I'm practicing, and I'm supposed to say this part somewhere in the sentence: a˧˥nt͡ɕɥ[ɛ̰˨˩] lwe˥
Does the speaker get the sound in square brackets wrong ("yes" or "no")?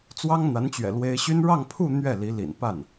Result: no